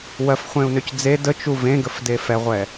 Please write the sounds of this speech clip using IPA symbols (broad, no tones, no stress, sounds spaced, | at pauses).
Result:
w ɜ f χʷ ẽ u̯ n ø c d͡z e d ə t͡ʃ u v ẽ ɡ ə f d e f ɛ ʁʷ ɛ